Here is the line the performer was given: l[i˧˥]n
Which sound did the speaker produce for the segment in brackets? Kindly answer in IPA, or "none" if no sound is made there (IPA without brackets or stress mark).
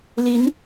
i˧˥